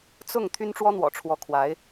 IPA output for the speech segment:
t͡s ʊ˥˨ ŋ t̪ʰ y˦ n ʈ͡ʂ w ɔ˦ n̪ w ɔ̰˨˩ ʈ͡ʂʰ w ɔ˨˦ kʰ w a˨˦ ɪ̯

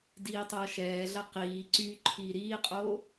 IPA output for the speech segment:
d iː tˤ ɐː ʃ ɛː ɮ ɐ q iː ǀ y ǃʰ iː ɾ iː qʼ oː

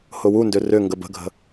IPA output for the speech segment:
h ʊ w u n d ʏ r ʏ ŋ ɡ ə b ə̤ ɡʱ ə̤

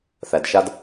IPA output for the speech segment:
θ æ˨ d ʃ a˦ d

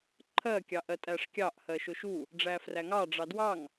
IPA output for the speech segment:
ǃʰ ɜ kʲ ɑ ʔ ɜ tʼ æ ʂ kʲ ɑ ʔ h ɜ ʃ ʊ ʃ u | ɖ͡ʐ æ f r æ ŋ ɑ ɖ͡ʐ ɑ d w ɑ ŋ

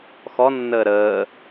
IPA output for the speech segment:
x ɔ nː əː ɾ əː

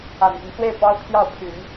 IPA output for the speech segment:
a˨˩ n p y˦ n s w e˥˩ ɪ̯ p ɑ˥ ʊ̯ t̪ʰ j ɑ˥˩ ʊ̯ pʰ y˨˩˦ n

